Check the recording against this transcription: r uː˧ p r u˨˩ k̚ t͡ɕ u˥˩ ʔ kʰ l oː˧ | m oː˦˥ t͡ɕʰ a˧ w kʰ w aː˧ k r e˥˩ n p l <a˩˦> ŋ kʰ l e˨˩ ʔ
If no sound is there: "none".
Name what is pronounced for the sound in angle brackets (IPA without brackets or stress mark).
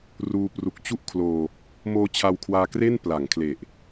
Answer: a˩˦